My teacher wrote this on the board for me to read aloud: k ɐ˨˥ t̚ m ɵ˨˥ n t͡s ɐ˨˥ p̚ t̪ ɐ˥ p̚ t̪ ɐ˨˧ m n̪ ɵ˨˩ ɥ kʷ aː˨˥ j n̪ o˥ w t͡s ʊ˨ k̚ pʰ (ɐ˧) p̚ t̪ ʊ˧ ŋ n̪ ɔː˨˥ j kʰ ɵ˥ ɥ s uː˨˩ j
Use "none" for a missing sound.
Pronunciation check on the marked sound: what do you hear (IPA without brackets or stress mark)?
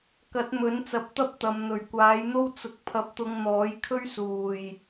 ɐ˧